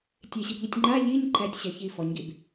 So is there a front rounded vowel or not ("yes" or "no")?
yes